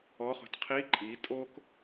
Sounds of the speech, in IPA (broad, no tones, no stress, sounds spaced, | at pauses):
ɔ χ ṳ d qʰ i ǃʼ i tʼ o k